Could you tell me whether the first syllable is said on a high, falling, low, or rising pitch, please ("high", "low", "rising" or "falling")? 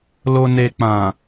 low